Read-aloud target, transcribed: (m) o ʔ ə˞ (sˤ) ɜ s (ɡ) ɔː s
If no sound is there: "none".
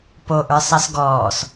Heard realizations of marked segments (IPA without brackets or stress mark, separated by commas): p, sˤ, ɡ